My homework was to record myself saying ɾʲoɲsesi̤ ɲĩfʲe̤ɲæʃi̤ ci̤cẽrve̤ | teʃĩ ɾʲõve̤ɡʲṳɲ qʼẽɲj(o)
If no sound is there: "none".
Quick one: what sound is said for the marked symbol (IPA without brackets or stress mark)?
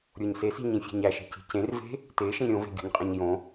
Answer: õ